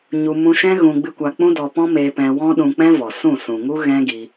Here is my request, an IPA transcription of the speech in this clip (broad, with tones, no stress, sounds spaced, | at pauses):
ɲ u˧ m ũ˧ ʃ ɛ̃˦ ɣ ũ˧ ɡ͡b ɨ˦ kʷ a˧ k͡p ũ˦ d ɔ˧ p ɔ̃˦ m eː˧ p ɛ̃˧ w ɔ̃˦ ɗ ũ˧ k͡p ɛ̃˦ v ɔ˨ s ũ˦˨ s ũ˨ ŋ u˦ ɣ ɛ̃˦ ɡ i˧